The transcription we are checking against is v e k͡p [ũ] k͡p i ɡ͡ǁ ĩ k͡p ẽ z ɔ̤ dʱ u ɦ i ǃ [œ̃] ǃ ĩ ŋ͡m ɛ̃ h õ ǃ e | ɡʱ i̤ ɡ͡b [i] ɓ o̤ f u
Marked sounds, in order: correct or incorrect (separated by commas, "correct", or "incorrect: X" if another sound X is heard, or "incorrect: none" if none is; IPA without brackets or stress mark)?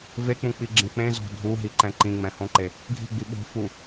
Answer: correct, incorrect: ɛ̃, correct